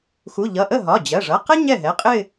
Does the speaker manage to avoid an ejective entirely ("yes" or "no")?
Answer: no